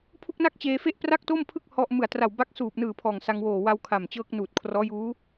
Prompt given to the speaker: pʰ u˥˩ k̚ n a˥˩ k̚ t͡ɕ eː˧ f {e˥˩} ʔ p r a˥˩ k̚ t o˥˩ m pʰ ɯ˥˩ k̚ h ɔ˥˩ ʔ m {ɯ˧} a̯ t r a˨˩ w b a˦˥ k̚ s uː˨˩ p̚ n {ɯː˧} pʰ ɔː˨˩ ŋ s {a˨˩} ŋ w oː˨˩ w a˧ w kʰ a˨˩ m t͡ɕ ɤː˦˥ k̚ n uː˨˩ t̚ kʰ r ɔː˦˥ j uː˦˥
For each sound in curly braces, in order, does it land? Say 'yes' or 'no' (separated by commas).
yes, no, no, no